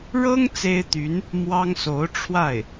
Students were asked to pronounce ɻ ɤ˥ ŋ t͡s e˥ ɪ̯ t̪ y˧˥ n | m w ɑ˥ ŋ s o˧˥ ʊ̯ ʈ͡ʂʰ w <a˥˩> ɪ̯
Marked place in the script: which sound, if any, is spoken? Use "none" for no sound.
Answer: a˥˩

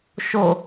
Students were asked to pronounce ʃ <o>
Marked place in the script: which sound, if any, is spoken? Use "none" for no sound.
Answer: o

